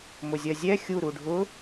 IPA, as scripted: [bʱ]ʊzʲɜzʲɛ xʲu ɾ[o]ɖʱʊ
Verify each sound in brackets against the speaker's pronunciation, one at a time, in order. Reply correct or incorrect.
incorrect: m, incorrect: u

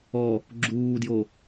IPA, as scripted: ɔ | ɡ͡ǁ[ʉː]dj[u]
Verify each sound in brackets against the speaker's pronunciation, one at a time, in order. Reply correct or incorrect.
incorrect: uː, incorrect: o

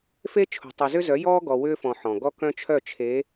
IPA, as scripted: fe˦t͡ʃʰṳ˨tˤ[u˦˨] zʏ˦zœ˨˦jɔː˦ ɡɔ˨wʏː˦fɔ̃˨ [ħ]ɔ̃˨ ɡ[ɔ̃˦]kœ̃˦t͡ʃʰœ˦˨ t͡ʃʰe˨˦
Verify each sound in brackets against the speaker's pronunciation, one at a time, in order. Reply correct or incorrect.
incorrect: u˨, correct, incorrect: ɔ˦

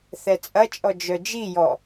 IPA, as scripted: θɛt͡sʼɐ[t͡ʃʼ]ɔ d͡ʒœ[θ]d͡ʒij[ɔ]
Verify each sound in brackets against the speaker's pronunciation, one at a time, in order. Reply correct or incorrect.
correct, incorrect: none, correct

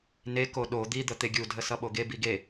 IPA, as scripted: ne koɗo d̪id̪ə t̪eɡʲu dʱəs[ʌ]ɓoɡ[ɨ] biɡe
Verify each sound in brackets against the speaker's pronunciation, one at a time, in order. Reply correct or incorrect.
correct, incorrect: e

